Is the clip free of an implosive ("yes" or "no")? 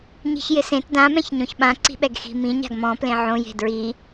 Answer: no